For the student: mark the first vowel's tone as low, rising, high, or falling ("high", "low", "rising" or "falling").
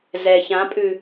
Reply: low